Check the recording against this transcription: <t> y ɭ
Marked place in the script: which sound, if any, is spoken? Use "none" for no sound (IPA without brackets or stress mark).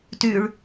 t